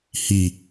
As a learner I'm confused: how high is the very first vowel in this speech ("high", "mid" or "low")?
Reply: high